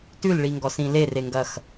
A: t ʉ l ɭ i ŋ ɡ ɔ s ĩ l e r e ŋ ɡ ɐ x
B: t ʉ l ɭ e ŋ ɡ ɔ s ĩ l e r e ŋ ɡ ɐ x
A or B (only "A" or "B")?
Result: A